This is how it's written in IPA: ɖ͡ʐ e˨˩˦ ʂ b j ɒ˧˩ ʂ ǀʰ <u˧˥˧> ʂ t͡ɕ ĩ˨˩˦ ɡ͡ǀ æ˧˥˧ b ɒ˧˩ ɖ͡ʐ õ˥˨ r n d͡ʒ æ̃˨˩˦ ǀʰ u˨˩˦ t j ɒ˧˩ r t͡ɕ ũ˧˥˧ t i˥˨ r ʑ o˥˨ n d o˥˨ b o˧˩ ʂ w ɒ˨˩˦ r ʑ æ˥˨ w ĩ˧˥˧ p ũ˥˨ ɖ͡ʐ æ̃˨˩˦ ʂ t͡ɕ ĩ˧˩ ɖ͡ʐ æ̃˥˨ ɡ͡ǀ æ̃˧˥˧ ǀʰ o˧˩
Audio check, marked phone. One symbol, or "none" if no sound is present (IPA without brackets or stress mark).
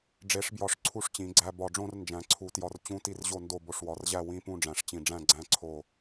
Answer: u˥˨